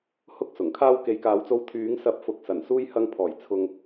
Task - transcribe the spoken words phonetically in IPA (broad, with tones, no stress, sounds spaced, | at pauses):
h ʊ˥ k̚ s ʊ˨˩ ŋ kʰ aː˥ w k e˨˧ j k aː˨˥ w t͡s o˧ w t̪ʰ yː˨˥ ŋ s ɐ˨˥ p̚ f ʊ˨ k̚ s ɐ˨˩ n s uː˧ j h ɐ˧ ŋ pʰ ɔː˨˩ j t͡sʰ ʊ˨ ŋ